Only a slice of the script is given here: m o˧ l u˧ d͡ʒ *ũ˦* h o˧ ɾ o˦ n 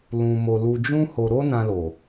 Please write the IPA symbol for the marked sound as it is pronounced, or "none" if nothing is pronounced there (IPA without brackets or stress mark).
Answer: ũ˦